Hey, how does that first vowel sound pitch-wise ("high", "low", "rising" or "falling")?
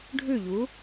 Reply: falling